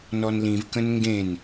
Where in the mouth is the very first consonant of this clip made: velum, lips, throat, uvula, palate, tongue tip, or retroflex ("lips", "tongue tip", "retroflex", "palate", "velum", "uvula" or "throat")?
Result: tongue tip